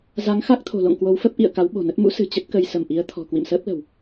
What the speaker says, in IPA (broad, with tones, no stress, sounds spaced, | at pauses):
z a˨˦ ŋ x a˦˥ k̚ t̪ʰ o̤˨˩ l o̰˧˨ ŋ k w o˨˦ w f ə˦˥ p̚ ʔ ḭ˧˨ ə̯ k a˨˦ w ɓ o̤˨˩ n ə˦˥ t̚ m ṵ˧˥ s ɨ̤˨˩ t͡ɕ ə˦˥ p̚ k ə˧ j s ə˧˩ m ʔ i˨˦ ə̯ t̪ʰ ɔ̤˨˩ k w ḭ˧˨ m s əː˦˥ p̚ l ə̤˨˩ w